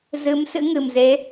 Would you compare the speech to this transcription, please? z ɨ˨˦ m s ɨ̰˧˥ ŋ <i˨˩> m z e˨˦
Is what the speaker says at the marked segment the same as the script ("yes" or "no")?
no